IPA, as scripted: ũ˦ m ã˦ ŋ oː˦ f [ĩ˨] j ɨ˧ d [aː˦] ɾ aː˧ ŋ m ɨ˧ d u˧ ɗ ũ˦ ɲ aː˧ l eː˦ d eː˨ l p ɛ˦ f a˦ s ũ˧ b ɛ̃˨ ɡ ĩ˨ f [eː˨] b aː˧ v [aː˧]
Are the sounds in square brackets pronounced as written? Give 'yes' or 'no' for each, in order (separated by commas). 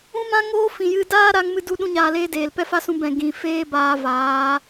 yes, yes, no, no